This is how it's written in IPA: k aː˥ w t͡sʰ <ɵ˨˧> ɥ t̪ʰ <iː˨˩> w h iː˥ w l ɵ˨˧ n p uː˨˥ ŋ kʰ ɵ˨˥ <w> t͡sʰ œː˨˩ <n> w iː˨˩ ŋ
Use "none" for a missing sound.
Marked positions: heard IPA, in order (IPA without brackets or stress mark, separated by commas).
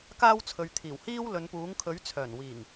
ɵ˨˧, iː˨˩, ɥ, n